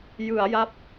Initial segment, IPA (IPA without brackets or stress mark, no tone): j